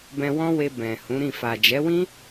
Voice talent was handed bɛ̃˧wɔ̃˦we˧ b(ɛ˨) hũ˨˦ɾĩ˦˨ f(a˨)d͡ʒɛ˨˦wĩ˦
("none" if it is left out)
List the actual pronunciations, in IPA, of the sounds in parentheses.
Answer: ɛ̃˨, a˨

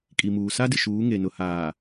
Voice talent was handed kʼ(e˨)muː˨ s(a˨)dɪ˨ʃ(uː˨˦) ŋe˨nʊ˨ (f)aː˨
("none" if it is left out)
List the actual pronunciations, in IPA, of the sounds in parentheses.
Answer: i˨, a˦, uː˨˦, h

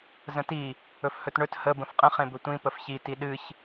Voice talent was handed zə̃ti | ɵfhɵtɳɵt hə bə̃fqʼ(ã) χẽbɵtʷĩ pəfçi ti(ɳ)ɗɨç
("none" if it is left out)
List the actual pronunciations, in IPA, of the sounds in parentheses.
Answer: ə̃, none

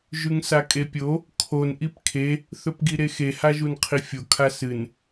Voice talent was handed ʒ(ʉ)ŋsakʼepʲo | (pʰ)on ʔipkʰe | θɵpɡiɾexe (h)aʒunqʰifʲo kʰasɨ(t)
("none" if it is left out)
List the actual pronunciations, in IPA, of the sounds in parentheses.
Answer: ʉ, kʰ, h, n

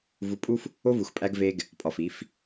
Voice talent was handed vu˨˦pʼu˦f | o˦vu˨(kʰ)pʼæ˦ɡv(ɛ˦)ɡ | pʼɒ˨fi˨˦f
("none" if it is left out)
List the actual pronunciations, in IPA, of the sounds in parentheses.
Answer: x, e˦

